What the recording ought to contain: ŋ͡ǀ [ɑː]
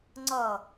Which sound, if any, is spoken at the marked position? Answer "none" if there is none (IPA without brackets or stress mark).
ʌː